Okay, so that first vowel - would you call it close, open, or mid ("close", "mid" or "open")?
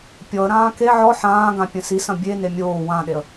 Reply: mid